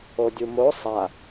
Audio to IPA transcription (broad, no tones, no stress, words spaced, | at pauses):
odʲumo sˤa